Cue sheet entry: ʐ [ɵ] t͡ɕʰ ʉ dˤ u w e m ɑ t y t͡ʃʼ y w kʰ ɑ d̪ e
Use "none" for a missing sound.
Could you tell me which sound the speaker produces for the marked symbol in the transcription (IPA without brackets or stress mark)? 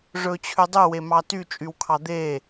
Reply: ɵ